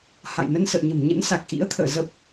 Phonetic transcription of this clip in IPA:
h a̰˧˨ j n ə˧ n s ə̰ː˧˨ ɲ ə̤˨˩ m ɲ ə̰˧˥ n s a˨˩ k̚ ʔ ḭ˧˥ ə̯ t̪ʰ ə̰ː˧˨ z ə˦˥ p̚

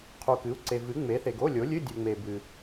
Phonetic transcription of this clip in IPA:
qʰ u˨ k ɨ˩˥ u̯ ǀ e˨ v ɨ˩˥ ŋ͡m e˩˥ θ e˨ ɡ o˧˥˧ lʲ o˩˥ lʲ ɨ˧˥˧ dʲ u˨ ŋ͡m e˨ b ɨ˨

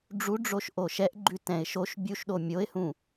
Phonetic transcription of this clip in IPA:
ɖ͡ʐ u ɖ͡ʐ o ʃ ʔ o ʃ ɛ ʔ ɡ͡ǃ ʉ t ɛ̃ ɪ̯ ʃ o ʃ bʲ u ʃ ɗ o mʲ o ɪ̯ h ũ

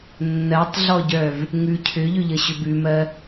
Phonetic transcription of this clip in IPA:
nː ɜ tˤ ɮ ɔ ɟ œ v | ŋ ʉ cʰ ʏ ʎ ʏ ʎ ə ɕ ʏ b ʉ m ɜ

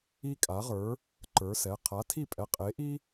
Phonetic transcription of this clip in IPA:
i˥ kʼ a˨˥ ʁ ə˞˨˥ | ǃ ə˞˨˥ s ɛ˩˧˩ qʰ a˨˥ tʰ i˥˨ pʼ ɛ˨˥ qʼ e˨˥ ʔ i˥

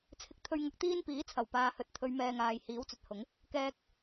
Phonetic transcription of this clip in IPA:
t͡sʰ ɪ˧ k̚ t̪ʰ ɵ˧ ɥ ŋ ɐ˧ k̚ t̪ iː˥ n p iː˨˥ t͡sʰ ɐ˨˩ w p aː˨ h ɵ˨ t̚ t̪ʰ ɵ˨˧ ɥ m ɛː˨ ŋ aː˨ j h iː˨˥ w t͡s ɵ˨ t̚ h ʊ˨˥ ŋ | k ɛː˧ k̚

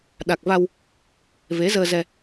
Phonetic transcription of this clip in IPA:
ɗ a˨˩ k̚ v a˧ w | v e˨˦ z əː˧ z ɛ˧

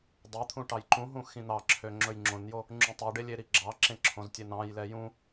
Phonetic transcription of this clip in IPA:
dˤ ɛ t̪ʰ ũ ʈ ɑ j ǃ ũ ɦ ũ x ĩ n̪ ɑ ǁʰ ø ŋ͡ǁ ɵ j ŋ͡ǁ õ n j o | ŋ͡ǁ ũ tˤ u ɖ e lʲ e ɾ i ɡ͡ǁ ɑ ǁ ẽ ǁʰ õ z tʲ e n ɑ̃ j l ɛ j ũ

